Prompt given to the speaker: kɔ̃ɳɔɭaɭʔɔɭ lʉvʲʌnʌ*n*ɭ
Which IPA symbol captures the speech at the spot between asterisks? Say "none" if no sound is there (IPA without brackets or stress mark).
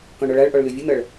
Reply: none